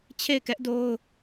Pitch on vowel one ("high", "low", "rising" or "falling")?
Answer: falling